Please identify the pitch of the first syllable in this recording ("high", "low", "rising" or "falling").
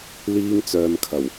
high